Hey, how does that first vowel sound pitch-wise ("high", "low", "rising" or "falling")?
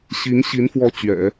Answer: rising